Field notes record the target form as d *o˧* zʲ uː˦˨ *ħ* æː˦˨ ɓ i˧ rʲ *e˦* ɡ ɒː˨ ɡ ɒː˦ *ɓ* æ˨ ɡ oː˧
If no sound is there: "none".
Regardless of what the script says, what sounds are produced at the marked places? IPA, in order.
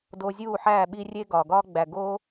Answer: o˧, ħ, e˦, ɡ͡b

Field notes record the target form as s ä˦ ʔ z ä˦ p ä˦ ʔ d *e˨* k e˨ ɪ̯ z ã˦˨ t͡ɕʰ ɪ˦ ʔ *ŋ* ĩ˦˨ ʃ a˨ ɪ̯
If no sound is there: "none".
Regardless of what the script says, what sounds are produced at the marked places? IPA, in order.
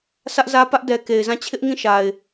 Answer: ɛ˨, ŋ

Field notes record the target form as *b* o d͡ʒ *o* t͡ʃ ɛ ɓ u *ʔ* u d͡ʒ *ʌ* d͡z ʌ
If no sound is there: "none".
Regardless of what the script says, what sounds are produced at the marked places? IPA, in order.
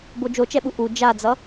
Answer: b, o, ʔ, a

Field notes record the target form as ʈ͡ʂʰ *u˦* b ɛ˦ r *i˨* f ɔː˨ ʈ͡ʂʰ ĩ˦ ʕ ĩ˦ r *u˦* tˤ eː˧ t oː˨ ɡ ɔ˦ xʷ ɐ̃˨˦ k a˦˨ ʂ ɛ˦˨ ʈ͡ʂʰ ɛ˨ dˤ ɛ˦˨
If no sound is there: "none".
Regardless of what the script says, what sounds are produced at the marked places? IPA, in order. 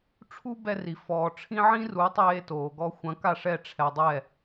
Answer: u˦, i˨, u˨˦

